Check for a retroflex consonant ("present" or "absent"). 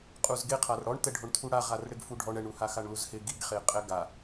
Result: present